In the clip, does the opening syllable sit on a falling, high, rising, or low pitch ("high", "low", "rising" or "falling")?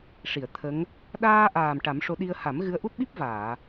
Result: low